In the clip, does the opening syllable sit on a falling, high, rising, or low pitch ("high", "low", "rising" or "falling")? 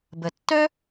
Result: low